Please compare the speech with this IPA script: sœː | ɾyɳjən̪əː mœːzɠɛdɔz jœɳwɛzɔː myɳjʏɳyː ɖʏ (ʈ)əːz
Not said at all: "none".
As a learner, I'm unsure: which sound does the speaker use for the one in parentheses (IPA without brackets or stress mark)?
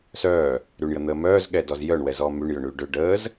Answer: ɖ